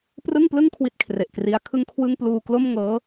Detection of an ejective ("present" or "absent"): absent